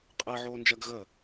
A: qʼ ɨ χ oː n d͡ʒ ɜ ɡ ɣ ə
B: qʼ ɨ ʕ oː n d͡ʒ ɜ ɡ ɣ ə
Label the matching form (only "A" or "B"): B